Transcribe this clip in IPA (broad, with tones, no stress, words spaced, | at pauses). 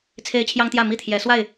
t͡sʰe˦ɪ̯t͡ɕʰjɑ˦ŋt̪jä˥˨ mi˥˨t̪ʰjɛ˨˦swa˥˨ɪ̯